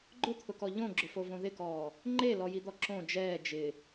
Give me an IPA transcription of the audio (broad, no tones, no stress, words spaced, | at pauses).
ɡ͡ǃʊt̪ʰʊkɔ ʎõɡ͡ǁʊfovõ ðɪkɔː | ŋ͡ǃelɔjid̪ɔ ǁõ d͡ʒɛː d͡ʒɪ